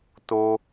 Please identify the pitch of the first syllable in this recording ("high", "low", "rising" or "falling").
high